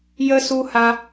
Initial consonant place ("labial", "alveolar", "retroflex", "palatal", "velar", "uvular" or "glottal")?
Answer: palatal